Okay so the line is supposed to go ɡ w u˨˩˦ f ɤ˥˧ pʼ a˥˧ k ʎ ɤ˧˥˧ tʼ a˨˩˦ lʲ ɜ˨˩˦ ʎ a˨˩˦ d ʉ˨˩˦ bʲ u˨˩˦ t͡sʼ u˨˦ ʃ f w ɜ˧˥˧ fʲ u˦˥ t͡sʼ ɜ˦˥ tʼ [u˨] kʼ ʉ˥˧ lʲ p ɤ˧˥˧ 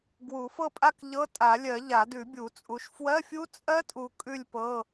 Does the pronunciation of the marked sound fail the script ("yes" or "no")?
no